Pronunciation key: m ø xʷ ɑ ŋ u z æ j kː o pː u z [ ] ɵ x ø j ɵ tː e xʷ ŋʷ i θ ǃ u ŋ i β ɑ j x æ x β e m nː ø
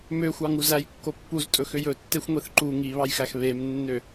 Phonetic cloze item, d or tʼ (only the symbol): tʼ